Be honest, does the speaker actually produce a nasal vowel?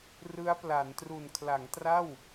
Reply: no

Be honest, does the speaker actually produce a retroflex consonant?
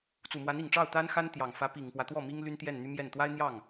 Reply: yes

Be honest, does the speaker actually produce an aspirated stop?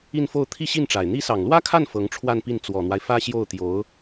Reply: yes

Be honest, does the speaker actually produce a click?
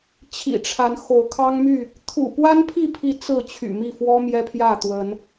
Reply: no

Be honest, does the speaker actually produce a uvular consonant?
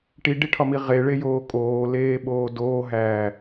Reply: yes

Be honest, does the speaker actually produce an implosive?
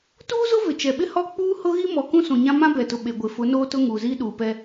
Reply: yes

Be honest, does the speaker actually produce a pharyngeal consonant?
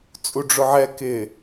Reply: yes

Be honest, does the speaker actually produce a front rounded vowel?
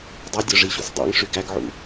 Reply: yes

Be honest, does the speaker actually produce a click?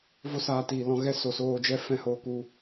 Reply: no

